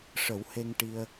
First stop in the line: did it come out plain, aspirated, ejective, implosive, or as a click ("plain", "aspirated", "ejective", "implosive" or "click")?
plain